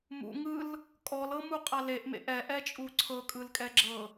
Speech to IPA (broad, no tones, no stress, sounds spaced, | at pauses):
m ṵ ŋ ɯ l | kʼ ɔ l ɤ m u qʼ a l e ʔ m ḛ ʔ ɛ ʔ ɛ t͡ʃʼ u ǀʰ ɤ kʼ ɯ l kʼ ɛ ɡ͡ǁ ɤ